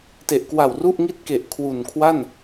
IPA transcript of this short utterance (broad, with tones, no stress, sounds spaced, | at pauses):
t e˨˩ ʔ k w a˨˩ w r u˥˩ ʔ ŋ i˥˩ t̚ k e˨˩ ʔ kʰ w u˨˩ n kʰ w a˥˩ n